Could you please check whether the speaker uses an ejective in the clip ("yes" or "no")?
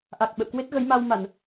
no